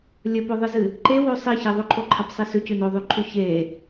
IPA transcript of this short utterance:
lʲ ɵ p o ðˤ ɨ z ɨ | ǃ e w o sˤ i ç e ðˤ ɵ ǃʰ o ǃʰ ɐ p sˤ e s ʉ c ʉ n o ðˤ ʉ ǃʰ ʉ ç e

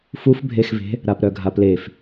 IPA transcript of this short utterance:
f u f bʱ e x v e̤ | ɾ a p ɾ œ ɡʱ a p l e f

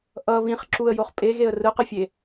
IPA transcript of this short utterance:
ʔ ʌ β ĩ χ ǁ u ə̯ j o χ pʼ e ɣ e ə̯ r ɯ q ɯ fʲ e

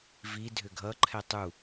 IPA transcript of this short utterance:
v i dʱ ʏ ɡʱ ʌ ǃʰ ɛ tˤ u

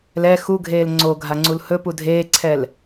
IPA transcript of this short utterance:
l ɛ x u ɡʱ eː l ŋ͡ǀ o ɡʱ a ŋ͡ǀ u l h ɵ p u dʱ eː ǀʰ ɛ l

